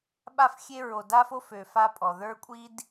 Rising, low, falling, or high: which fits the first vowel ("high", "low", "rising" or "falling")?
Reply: falling